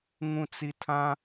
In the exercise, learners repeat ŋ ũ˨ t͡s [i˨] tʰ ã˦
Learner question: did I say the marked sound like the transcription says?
yes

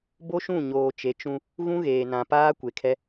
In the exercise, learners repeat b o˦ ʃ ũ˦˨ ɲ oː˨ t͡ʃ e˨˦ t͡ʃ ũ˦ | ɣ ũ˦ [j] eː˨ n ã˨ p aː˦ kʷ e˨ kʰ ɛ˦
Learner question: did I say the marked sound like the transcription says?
no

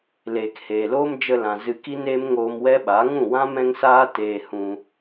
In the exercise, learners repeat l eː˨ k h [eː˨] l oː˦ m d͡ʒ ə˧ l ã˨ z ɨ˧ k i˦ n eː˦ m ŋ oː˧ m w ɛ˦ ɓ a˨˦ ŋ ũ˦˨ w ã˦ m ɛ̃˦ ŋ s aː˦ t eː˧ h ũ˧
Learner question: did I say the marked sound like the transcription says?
yes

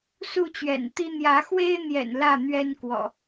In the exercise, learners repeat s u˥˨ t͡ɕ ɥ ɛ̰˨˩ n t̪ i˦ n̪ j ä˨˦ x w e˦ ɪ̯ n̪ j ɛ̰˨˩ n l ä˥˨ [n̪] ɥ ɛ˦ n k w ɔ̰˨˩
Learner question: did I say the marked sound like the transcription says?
yes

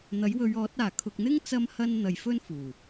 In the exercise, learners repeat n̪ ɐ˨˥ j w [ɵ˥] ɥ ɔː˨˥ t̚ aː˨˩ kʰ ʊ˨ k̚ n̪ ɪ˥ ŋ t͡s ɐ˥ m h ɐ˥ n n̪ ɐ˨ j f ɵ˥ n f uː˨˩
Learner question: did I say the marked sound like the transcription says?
no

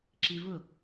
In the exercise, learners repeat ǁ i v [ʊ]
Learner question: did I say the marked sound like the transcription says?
yes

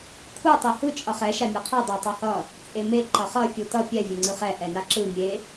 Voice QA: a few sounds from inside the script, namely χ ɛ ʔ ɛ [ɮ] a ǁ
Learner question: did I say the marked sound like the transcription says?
no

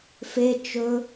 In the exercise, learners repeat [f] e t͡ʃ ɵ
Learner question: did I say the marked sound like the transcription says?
yes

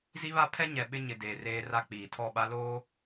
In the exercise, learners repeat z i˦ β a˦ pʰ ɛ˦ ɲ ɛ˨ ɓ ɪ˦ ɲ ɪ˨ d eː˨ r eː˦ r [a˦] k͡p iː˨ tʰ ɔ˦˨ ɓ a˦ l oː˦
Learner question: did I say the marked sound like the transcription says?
yes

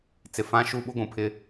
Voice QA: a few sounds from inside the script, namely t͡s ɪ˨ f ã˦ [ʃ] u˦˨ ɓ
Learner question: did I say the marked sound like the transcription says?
yes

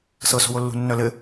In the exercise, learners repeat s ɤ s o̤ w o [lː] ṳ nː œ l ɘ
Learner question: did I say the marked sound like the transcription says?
yes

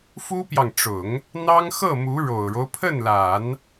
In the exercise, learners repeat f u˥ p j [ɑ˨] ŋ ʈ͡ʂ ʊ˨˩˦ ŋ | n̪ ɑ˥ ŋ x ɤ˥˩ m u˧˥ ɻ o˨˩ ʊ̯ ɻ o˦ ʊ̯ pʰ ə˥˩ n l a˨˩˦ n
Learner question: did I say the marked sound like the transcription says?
yes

